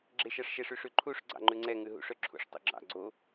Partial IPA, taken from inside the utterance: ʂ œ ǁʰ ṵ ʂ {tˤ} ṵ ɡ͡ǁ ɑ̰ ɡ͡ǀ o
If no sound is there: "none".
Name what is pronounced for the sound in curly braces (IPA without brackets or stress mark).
tˤ